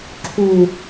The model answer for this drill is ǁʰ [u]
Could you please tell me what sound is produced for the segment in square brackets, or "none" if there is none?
u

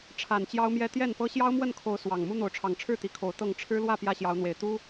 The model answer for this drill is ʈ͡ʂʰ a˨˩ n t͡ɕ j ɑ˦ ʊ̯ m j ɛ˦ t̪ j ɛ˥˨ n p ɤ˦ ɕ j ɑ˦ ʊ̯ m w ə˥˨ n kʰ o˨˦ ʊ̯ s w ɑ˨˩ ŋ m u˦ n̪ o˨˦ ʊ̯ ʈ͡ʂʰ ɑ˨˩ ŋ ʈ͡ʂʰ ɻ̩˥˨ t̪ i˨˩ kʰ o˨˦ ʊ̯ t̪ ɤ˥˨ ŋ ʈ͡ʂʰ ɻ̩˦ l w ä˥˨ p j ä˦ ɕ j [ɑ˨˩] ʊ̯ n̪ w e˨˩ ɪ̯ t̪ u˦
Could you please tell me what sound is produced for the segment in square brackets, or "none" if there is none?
ɑ˨˦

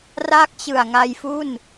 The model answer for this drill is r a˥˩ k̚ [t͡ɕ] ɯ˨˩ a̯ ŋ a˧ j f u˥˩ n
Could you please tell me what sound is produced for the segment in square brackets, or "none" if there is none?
t͡ɕ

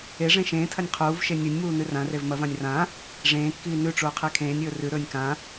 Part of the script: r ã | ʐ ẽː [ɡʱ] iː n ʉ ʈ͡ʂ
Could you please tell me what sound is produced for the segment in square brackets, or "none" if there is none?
kː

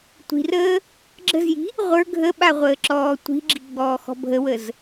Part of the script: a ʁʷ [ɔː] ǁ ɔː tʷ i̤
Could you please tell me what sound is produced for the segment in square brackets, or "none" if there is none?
əː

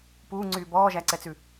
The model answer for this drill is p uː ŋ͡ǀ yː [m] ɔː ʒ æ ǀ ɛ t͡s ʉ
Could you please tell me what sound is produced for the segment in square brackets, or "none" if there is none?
b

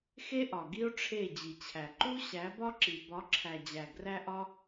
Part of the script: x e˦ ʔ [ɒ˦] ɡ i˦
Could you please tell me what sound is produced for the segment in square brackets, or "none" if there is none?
ɒ˨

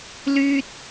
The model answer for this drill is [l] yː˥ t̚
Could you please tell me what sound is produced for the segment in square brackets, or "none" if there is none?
l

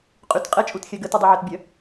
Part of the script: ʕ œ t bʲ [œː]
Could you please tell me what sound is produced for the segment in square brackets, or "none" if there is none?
œ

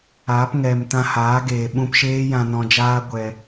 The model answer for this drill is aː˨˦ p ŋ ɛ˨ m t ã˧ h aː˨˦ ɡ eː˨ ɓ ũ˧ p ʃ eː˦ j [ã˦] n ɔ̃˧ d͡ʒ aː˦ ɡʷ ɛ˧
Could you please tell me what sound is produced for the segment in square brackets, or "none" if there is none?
ã˧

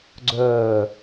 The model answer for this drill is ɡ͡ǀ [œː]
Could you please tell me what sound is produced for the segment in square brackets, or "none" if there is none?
œː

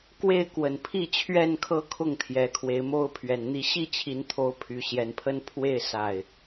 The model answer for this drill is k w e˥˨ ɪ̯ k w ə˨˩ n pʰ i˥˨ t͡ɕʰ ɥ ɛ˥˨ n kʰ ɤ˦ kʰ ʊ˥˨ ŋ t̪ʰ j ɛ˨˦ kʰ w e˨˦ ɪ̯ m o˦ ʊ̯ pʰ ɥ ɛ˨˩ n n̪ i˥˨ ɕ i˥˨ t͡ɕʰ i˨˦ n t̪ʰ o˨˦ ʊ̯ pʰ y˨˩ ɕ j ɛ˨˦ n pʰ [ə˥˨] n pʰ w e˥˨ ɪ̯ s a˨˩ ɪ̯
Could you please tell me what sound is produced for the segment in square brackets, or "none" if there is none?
ə˦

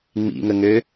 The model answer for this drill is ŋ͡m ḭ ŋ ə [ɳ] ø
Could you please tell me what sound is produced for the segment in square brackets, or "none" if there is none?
ŋ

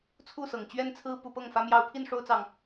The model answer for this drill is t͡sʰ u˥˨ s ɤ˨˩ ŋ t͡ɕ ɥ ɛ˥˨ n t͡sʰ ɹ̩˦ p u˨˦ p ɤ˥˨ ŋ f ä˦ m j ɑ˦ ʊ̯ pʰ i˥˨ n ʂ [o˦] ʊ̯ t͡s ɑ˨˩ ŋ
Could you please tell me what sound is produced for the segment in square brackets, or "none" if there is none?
o˦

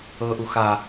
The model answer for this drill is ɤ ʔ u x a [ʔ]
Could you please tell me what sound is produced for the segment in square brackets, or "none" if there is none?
none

